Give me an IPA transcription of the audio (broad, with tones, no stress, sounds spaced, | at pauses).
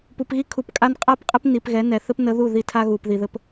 p u˨ p ɣ i˦ kʰ u˨ p kʼ a˦ n qʼ a˦ p qʼ ɘ˦ p n i˨ p ɣ ɛ˨˦ n ɛ˨ θ ɘ˦ p n ə˨˦ ð u˦˨ ð i˦ tʰ a˦ ɣ u˨ p ð i˨ ð ɘ˦ p